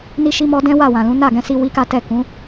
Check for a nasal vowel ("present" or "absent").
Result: present